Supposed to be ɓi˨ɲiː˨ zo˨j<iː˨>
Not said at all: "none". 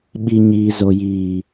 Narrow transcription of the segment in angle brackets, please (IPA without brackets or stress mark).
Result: iː˨